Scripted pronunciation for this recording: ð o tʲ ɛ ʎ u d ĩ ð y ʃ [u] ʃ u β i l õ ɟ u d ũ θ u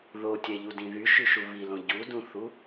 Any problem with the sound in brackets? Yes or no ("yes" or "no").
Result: yes